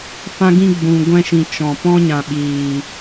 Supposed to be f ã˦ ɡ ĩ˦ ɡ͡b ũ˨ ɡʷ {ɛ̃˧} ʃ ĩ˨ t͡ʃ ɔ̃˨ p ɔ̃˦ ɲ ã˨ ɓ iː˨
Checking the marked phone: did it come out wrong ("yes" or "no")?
no